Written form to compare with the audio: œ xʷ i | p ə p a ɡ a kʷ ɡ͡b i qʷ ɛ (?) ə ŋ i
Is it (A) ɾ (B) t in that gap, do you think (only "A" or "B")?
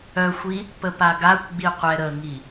A